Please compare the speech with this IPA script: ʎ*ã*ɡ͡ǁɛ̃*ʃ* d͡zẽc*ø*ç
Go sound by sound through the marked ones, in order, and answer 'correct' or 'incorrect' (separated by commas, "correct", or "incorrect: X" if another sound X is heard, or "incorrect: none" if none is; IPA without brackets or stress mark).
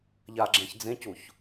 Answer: incorrect: a, incorrect: ç, incorrect: u